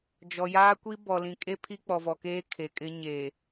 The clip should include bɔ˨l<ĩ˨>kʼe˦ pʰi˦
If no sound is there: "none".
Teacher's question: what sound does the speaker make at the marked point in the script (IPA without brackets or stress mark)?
ĩ˨